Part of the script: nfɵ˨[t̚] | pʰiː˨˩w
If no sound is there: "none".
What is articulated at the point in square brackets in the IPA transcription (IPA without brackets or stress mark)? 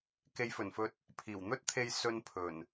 t̚